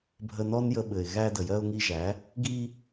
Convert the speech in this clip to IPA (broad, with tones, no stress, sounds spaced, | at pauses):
bʱ ə˧ n ɔ˦ n j ə˧ ɓ ɘ˨ ɪ̯ ɣ æ˧ d ə˨ j ɜ˧ ʊ̯ ŋ i˧ ʒ æ˨˦ | ɡ i˧